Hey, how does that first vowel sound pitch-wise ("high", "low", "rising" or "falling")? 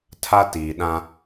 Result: high